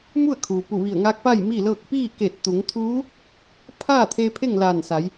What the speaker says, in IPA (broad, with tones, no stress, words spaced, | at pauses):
mu˥˨ə̯kʰuː˩ pu˧˩ʋi˧˩ə̯ŋaː˧˥k̚pa˥˨j miː˥˨lɤː˥˨k̚ piː˥˨ke˧˩t̚t̪u˩˧ŋ t̪ʰuː˧˥ | pʰaː˥˨t̪ʰe˧ pʰe˥˨ŋlaː˧˩nsa˩˧j